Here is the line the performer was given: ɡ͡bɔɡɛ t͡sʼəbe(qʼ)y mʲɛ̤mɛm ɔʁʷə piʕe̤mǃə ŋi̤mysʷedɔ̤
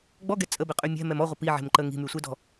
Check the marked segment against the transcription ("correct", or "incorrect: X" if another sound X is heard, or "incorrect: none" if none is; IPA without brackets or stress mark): correct